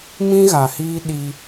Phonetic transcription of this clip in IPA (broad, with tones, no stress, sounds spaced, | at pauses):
m ĩ˦ ɣ a˨ h iː˦ ɗ i˦